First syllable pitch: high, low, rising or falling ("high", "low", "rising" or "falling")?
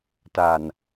low